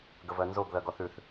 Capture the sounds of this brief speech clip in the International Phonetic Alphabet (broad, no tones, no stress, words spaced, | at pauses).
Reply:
ɡəvɜnzoɡ ðɜɡɔθʉθ